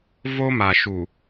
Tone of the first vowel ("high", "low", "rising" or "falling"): high